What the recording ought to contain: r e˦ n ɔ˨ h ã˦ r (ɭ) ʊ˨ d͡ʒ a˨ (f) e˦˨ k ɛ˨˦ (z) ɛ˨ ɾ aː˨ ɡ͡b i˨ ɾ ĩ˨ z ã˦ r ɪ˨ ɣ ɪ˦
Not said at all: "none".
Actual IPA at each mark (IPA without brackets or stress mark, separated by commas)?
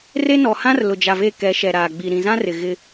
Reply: l, v, ʃ